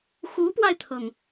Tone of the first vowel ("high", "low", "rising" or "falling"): rising